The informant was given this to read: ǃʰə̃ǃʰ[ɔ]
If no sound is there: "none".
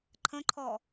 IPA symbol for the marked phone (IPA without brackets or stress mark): ɔ